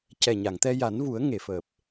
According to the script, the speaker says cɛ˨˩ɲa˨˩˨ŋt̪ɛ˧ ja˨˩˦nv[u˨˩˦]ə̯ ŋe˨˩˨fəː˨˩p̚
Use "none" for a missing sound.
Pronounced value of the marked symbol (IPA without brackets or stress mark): u˨˩˦